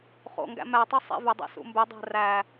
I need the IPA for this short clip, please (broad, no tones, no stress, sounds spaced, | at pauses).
χ o̰ ŋ ɡ æ̰ m æ tˤ u sˤ ḛ v ʏ dˤ ḛ s ṵ m b ʏ dˤ æ̤ r æ